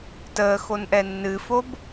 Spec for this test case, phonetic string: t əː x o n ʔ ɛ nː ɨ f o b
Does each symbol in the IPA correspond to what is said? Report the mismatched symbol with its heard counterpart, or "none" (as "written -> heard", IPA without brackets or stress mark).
none